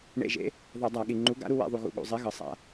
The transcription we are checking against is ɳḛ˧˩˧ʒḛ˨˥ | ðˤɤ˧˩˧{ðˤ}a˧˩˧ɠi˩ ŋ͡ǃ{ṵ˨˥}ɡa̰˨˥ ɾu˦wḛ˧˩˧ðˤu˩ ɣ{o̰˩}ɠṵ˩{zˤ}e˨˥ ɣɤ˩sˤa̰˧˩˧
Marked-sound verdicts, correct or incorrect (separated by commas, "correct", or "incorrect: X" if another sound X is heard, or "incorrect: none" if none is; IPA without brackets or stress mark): incorrect: dˤ, incorrect: u˨˥, incorrect: ṵ˩, correct